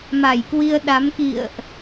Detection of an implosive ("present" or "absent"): present